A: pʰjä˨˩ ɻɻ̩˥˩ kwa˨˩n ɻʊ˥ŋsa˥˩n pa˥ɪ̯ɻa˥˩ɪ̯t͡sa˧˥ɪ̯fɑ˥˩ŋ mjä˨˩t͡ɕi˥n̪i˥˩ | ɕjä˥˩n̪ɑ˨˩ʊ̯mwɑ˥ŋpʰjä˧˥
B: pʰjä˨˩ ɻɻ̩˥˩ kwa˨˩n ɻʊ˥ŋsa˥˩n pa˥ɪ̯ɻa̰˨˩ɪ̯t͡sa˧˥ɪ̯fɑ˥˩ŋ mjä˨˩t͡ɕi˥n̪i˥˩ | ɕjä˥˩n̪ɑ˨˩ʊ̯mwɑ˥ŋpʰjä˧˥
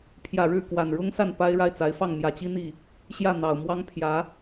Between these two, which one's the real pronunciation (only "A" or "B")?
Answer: A